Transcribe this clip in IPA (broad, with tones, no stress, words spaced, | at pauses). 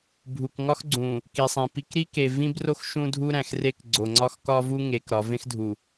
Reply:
bʱu˨kŋɒ˦x ɡ͡ǀũ˨ | ki˨sˤẽ˨pi˦k ɾi˦ke˨ vĩ˦bro˦x ʃũ˦dʱu˦ɾæ̃˨xre˦k ɡ͡ǀo˨ŋ͡ǀɒ˦xkɒ˦vu˦ ŋe˨˦kɾɒ˨˦ vẽ˦xdʱu˨